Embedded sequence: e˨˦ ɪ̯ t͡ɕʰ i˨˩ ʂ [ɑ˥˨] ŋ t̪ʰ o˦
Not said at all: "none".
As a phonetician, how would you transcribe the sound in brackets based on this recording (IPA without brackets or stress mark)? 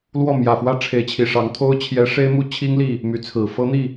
ɑ˨˦